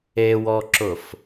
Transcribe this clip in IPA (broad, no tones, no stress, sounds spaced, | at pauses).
e w ɔ ǁ ʊ f